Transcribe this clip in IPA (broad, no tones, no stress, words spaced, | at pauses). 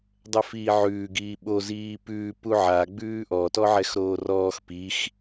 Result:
dˤɛfiːʕʉː ɡiːɓo ziːpʉː puʕa ɡ͡bʉːʔɔ tɔʕɛxɾoːrɔːx pix